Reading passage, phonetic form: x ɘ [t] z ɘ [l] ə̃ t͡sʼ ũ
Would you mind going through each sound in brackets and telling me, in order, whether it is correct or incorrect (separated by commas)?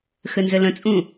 incorrect, correct